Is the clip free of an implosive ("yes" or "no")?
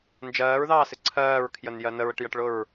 yes